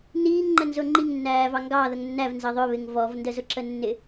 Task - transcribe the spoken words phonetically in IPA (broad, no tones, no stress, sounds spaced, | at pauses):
n iː ŋ ŋ͡ǃ ə n z ʊ ŋ͡ǃ i ŋ nː æː v ɑ ŋ ɡ ɑ ð ə ŋ nː æ v n z ə ðˤ ʊ β ɪ ŋ v ɔ v n d ə z ʊ ǁ ə nː ɪ